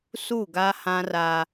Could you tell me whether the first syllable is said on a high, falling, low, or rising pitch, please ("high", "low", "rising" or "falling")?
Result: falling